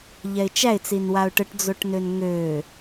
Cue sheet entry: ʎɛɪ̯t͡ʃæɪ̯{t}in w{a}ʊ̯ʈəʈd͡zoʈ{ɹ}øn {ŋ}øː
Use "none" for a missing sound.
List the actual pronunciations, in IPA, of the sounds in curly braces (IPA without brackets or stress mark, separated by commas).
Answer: t͡s, a, n, ŋ